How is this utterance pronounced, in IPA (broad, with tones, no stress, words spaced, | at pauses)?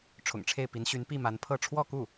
ʈ͡ʂʰʊ̰˨˩ŋʈ͡ʂʰe˥˩ɪ̯pi˧˥nɕy˧˥n pi˥˩ ma˧˥n pʰɤ˥˧ ʈ͡ʂʰwɔ˥˧ku˥˩